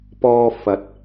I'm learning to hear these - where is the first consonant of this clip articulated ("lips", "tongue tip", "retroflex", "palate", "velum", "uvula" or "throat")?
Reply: lips